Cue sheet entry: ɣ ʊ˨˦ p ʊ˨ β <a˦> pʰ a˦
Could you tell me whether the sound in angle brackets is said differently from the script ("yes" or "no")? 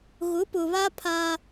no